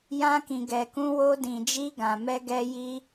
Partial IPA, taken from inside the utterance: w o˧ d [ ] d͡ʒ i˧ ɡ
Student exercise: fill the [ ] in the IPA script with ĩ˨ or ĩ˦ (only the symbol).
ĩ˨